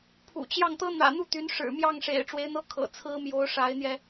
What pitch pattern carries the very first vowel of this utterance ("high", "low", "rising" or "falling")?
low